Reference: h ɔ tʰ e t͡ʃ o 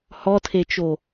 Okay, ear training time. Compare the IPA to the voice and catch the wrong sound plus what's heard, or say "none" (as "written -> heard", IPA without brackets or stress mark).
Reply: none